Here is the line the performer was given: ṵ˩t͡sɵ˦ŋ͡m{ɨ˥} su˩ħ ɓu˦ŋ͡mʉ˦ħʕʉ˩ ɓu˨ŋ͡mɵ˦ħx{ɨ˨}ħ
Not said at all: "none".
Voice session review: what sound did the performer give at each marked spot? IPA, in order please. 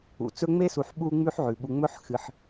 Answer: e˥, ɨ˨

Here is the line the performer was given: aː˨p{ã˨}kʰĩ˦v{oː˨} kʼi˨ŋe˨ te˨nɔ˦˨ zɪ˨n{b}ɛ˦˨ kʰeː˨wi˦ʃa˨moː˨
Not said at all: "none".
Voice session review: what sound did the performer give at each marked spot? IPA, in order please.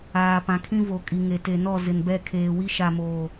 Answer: ã˨, o˨, b

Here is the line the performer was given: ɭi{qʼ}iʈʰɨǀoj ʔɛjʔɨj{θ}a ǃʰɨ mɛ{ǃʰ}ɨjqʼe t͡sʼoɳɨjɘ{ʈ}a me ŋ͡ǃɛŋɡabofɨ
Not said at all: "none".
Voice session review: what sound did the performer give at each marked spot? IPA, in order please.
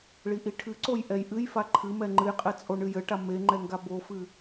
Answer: ʔ, f, ŋ͡ǃ, ʈ

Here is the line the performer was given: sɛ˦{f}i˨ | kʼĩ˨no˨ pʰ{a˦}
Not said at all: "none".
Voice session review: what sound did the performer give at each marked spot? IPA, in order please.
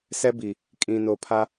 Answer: b, a˦

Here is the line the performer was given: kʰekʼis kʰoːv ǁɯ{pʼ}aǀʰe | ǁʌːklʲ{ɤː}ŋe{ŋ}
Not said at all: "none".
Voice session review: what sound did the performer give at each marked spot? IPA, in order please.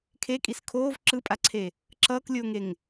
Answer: pʼ, oː, ŋ

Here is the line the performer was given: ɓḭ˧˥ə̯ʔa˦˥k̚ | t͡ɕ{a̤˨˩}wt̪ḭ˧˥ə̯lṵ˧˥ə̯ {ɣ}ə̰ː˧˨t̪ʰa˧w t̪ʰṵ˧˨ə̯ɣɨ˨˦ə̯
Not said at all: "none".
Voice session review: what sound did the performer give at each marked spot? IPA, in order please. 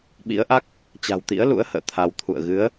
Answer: a̤˨˩, h

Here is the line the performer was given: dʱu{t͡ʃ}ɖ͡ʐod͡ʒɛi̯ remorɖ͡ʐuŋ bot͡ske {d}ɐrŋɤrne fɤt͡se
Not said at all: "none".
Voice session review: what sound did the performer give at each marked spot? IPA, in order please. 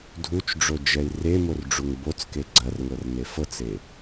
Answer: t͡ʃ, ɡ͡ǀ

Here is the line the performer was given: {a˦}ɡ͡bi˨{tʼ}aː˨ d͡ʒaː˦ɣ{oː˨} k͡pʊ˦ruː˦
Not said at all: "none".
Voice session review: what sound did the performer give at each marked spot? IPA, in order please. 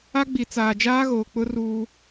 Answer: a˦, t͡s, oː˨

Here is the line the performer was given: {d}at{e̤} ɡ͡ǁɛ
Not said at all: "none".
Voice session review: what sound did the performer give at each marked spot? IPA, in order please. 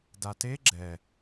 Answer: d, e

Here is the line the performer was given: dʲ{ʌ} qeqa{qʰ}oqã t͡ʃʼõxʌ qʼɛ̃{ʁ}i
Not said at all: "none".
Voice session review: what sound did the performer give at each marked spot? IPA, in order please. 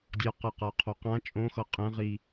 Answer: ʌ, qʰ, ʁ

